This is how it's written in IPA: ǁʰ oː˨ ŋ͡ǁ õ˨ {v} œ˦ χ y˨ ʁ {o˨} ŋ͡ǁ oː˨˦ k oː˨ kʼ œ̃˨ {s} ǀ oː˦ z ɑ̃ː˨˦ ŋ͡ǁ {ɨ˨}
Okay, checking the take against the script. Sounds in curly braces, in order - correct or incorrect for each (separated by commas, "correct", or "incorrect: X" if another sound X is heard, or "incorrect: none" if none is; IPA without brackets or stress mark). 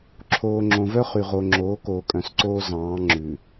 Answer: correct, correct, correct, incorrect: ʉ˨